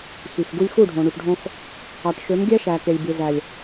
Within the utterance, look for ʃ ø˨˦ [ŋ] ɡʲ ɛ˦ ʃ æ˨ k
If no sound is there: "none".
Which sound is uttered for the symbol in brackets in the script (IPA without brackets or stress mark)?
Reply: m